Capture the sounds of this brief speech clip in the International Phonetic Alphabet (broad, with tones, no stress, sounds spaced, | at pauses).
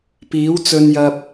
p iː˨˥ w t͡s ɵ˧ n j ɐ˧ p̚